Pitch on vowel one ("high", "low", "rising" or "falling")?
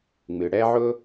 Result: low